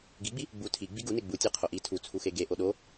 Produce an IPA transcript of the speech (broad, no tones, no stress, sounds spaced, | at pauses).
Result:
ɡ i ɡ͡b i | ɡ͡b u tʰ i ɡ͡b i ɡ u n e ɡ͡b u tʲ e qʰ o ʔ i tʰ u t͡sʰ u x e ɡ e ʔ o ɗ o